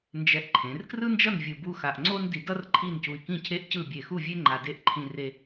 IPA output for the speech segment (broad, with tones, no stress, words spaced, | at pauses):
nd͡ʒɛ˧ʔǃʰẽ˩˧r krɯ˥nd͡ʒʌ˥˧n vʲɯ˧bu˥xa˧ʔ ŋ͡ǀo˥ndi˧dʌ˥r ǃʰi˥˧ncu˧i̯kĩ˥˧ cʰe˥˧ʔcɯ˥˧ bʲe˧˩xu˥˧vʲe˥ ŋ͡ǃa˧de˥˧ʔ ǃʰĩ˧re˧